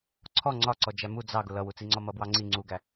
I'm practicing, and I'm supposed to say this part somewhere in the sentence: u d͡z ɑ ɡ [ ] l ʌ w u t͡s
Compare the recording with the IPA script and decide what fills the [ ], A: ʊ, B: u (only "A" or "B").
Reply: A